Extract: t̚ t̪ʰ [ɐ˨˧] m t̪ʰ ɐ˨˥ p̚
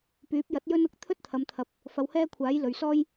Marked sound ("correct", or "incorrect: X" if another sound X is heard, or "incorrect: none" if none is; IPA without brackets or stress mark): correct